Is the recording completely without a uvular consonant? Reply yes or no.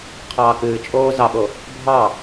no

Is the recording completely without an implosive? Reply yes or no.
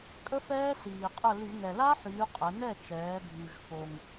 yes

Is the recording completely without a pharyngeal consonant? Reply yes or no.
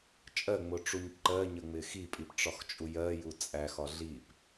yes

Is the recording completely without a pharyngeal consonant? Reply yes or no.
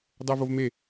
yes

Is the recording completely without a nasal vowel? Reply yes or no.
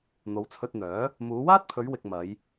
yes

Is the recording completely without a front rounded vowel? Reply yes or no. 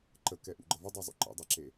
yes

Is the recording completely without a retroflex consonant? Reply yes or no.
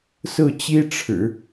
no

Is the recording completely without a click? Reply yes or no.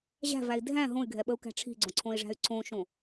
no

